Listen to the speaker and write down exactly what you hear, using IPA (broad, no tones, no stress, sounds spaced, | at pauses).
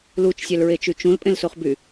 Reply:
l u t͡ʃ sʲ æ l ɹ e t͡ʃ y t͡ʃ ũ l pʼ ẽ l s o χ b y